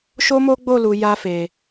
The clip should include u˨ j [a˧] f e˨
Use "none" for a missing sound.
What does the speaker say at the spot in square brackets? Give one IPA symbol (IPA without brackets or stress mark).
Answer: a˧